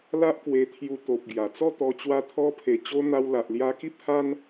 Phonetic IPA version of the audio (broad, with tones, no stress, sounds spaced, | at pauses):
l a˦ ʔ k w e˧ t̪ʰ j u˧ t̪ o˨ p̚ ɡ j a˨˩ t͡s ɔ˥˧ t̪ ɔ˧ t͡ɕ w a˧ t̪ʰ ɔ˧ pʰ e˨˩ t͡ɕ o˧ n̪ a˧ w l a˨ ʔ l j a˧ k i˦ p̚ h a˦ n